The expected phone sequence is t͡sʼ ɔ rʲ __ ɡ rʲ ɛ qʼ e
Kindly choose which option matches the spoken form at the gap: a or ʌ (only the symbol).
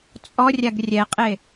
a